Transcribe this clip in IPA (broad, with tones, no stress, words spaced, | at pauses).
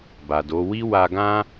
ba˨do˨˦ wi˦wa˧ɡã˦